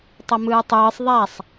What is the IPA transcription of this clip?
tˤ ʌ m ɯː tˤ ɯː sˤ ðˤ a sˤ

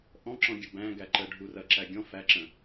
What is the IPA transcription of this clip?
ʔ ɔ̃ ǁ ɔ̃ ɡʲ ə b æ̃ ɡ æ ǃ ə ɖʱ u r ɐ ǁ æ ɡʲ ɔ̃ f æ ǁ ə̃

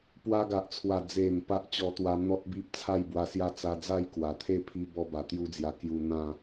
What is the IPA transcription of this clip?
p w a˧ ɡ a˨ ʔ t͡sʰ w a˨˩ d͡z e˨˩ m p a˦ ʔ t͡ɕ ɔ˧ t̪ w a˧ n̪ ɔ˦ t̚ b i˦ p̚ t͡sʰ a˥˧ j b w a˧ s j a˦ t͡s a˧ d͡z a˥˧ j k w a˨˩ t̪ʰ e˥˧ pʰ i˦ b ɔ˦ b a˨˩ t̪ j u˦ d͡z j a˧ k j u˧ n̪ ã˥˧

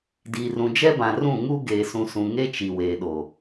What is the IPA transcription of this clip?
d iː˨ r ũ˨ d͡ʒ ɛ˦ b ã˨ r ũ˦˨ ŋ u˦ ɡ eː˨ s ũ˨ s ũ˨ ŋ e˦ t͡ʃ i˨ w eː˨ ɗ o˨

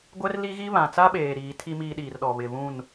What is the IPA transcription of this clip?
ɡʷ ɛ˦ r l i˦ ɣ i˦ β ã˨ t͡s a˦ ɓ eː˨ ɾ iː˨˦ tʰ i˦ m iː˦ ɗ iː˨ r ɗ ɔ˨ β ɪ˨ β ũ˦˨ n

